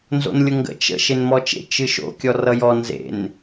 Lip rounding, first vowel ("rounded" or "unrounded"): rounded